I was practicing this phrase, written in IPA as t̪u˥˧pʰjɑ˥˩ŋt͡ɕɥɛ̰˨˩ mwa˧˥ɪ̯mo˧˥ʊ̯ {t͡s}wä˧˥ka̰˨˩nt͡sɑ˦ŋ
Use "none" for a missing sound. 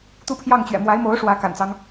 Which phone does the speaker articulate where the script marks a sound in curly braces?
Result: ʂ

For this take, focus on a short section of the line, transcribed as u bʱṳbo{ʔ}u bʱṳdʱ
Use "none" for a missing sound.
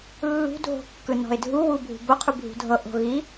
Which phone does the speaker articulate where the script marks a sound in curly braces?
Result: qʰ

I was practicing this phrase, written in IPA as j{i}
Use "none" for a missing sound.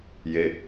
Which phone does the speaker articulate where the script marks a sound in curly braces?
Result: e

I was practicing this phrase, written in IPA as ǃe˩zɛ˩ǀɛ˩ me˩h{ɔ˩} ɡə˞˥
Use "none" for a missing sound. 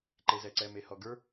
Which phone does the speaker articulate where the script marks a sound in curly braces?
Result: ɔ˩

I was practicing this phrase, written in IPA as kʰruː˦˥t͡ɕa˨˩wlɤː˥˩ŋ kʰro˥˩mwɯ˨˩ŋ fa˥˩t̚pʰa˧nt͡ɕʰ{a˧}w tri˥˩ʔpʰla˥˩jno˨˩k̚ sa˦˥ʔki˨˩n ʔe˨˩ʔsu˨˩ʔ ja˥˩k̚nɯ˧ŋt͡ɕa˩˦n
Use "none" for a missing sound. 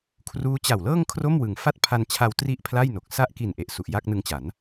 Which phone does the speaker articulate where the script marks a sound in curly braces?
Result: a˧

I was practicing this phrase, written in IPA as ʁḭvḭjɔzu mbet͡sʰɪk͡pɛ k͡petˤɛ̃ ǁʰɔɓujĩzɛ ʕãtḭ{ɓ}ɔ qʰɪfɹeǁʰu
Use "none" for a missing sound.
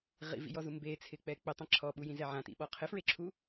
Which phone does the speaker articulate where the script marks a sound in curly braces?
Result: ɓ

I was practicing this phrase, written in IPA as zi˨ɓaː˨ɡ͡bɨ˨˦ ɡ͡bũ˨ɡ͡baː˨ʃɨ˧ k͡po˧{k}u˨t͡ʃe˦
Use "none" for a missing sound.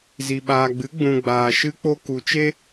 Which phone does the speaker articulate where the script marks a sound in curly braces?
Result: k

